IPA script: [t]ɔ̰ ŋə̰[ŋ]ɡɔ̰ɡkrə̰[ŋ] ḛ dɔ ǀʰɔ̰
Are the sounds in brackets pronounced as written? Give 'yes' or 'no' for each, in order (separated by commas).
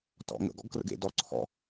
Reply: yes, no, no